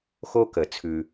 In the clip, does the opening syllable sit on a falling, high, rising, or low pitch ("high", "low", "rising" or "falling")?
high